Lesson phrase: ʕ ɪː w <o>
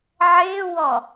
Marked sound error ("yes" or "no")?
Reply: yes